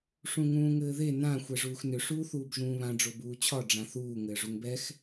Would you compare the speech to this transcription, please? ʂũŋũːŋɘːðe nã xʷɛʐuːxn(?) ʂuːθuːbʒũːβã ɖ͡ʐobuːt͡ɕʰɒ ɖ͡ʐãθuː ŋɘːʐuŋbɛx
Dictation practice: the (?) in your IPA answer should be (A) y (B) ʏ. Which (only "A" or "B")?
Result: B